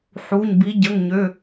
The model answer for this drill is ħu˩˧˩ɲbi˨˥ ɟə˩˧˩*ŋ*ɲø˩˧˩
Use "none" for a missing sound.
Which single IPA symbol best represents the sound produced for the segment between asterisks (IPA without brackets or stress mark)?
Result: ŋ